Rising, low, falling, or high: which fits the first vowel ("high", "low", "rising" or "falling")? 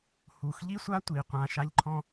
low